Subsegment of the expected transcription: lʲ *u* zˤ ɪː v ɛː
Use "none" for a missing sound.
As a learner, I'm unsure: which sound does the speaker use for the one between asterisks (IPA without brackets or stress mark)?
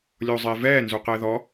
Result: o